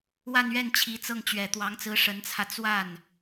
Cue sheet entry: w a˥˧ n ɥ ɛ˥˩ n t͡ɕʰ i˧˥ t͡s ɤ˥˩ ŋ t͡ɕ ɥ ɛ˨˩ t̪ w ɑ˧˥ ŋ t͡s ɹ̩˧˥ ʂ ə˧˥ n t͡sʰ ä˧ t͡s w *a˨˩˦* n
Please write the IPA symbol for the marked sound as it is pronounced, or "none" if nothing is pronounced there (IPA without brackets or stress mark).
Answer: a˥˩